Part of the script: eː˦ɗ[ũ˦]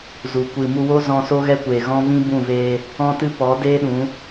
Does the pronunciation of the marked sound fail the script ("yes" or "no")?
yes